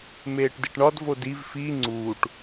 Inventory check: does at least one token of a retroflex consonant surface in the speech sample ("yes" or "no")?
yes